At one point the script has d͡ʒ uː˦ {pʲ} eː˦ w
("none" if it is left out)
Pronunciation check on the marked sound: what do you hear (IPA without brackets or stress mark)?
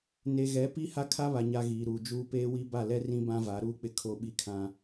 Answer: p